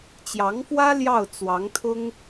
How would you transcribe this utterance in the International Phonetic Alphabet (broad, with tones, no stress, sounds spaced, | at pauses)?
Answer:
t͡ɕ j ɑ˧˥ ŋ f w ä˥ l j ɑ˥˩ ʊ̯ t͡s w ɑ˧˥ ŋ t̪ʰ ʊ˥ ŋ